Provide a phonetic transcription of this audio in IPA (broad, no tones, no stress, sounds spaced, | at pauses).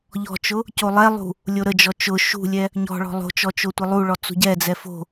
ʎ ɔ̤ t͡ʃ ʊ | c o lˠ ɛ lˠ ṳ | lʲ o ɾ ə d͡ʒ ɔ t͡ʃ ʊ ʃ ṳ lʲ ɛ | ɲ ɔ̤ ɭ ɔ̤ lˠ o̤ t͡ʃ ɔ t͡ʃ o tʷ ə lˠ u ɭ ɔ t͡s ṳ ɟ ɛ d͡z ɛ f o̤